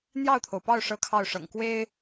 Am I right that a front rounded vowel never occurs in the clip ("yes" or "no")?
yes